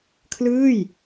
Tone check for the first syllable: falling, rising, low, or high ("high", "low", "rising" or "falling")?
falling